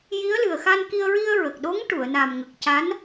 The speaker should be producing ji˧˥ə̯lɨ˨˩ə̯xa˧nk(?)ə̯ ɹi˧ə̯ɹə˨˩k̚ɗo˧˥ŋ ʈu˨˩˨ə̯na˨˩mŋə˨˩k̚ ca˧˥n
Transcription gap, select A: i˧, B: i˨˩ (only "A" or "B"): A